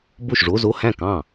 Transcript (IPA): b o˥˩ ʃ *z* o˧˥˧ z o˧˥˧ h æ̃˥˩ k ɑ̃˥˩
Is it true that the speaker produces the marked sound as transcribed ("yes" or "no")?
no